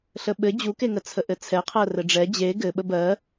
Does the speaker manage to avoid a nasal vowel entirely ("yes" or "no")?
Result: yes